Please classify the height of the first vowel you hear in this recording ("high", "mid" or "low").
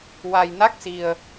low